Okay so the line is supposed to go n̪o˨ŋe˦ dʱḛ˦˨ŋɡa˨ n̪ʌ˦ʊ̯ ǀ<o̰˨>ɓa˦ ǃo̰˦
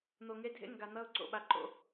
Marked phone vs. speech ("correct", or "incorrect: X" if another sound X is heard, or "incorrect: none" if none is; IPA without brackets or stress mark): incorrect: o̰˦˨